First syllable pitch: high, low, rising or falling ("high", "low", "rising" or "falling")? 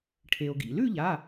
low